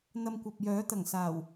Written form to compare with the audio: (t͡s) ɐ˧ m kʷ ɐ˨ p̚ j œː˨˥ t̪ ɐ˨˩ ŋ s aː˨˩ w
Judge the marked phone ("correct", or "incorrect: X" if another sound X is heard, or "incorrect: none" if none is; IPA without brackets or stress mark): incorrect: n̪